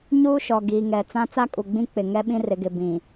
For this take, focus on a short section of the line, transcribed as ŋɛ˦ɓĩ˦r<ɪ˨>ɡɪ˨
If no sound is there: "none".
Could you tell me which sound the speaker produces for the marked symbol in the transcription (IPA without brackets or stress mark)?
ɪ˨